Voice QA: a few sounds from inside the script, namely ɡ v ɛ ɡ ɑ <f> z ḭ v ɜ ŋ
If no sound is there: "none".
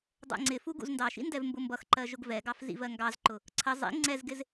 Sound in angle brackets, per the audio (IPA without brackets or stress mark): f